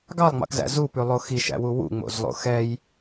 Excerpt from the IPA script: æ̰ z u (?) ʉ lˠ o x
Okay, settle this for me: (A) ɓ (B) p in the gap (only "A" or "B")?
B